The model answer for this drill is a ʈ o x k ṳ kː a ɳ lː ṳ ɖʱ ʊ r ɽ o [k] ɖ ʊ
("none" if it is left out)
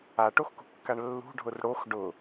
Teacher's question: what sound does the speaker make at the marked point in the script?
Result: x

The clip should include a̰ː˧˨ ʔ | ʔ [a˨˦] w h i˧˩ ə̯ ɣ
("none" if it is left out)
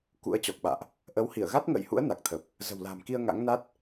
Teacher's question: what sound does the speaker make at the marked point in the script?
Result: ə˨˦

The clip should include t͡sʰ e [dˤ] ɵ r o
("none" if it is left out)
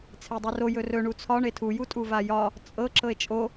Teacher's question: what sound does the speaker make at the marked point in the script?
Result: dˤ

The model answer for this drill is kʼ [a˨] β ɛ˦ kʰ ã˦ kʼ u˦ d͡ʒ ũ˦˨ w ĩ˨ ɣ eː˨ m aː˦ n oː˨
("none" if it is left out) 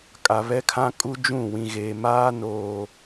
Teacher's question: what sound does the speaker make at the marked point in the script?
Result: a˨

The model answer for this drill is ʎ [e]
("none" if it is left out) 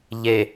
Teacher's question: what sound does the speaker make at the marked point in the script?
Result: e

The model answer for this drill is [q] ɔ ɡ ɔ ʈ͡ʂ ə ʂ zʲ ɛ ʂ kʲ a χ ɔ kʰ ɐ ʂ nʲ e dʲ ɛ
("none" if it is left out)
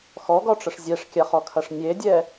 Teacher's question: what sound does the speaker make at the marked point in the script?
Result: x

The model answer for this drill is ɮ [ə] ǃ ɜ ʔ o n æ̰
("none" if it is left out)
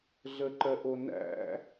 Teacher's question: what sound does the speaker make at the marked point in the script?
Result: ə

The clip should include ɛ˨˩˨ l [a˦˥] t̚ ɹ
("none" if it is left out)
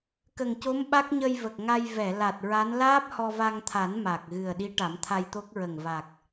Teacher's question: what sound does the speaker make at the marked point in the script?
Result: a˨˩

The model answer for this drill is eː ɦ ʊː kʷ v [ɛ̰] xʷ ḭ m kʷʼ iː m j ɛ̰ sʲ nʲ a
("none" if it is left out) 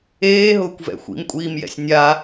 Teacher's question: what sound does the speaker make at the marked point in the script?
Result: ɛ̰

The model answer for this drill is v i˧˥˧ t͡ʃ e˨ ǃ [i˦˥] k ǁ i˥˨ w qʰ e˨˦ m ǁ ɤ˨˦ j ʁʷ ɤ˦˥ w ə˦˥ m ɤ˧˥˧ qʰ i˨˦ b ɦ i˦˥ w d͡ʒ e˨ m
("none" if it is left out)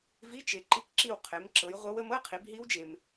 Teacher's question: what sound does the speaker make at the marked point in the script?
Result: i˦˥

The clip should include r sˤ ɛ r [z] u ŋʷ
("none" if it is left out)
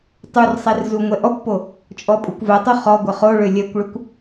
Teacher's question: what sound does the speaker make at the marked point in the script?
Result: z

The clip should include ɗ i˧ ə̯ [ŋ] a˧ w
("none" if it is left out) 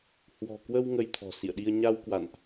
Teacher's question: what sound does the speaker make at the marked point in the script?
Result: ɲ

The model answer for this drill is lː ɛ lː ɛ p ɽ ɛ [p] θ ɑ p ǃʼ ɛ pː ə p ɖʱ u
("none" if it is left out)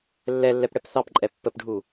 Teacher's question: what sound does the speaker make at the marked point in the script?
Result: p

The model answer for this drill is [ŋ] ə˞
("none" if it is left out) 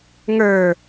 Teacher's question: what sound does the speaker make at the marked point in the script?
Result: ŋ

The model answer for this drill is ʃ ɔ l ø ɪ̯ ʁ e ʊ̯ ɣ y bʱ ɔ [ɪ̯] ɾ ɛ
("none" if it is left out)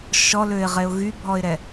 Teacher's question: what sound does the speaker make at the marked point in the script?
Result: ɪ̯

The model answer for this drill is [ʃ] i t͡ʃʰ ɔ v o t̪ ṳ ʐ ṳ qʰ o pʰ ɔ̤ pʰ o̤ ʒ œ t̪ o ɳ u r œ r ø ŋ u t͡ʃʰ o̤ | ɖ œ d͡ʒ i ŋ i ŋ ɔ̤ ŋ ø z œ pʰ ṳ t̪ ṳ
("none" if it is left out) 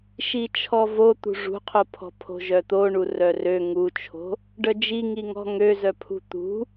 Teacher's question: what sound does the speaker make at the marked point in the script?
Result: ʃ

